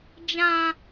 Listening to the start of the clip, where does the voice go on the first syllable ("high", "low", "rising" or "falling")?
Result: high